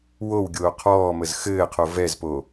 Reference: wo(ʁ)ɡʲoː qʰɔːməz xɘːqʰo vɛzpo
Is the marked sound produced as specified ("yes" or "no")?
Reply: no